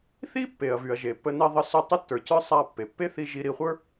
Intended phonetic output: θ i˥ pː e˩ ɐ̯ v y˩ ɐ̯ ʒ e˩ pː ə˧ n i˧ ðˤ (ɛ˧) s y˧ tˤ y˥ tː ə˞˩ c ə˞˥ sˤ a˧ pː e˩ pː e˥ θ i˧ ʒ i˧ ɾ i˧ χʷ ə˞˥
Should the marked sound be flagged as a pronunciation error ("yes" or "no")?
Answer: yes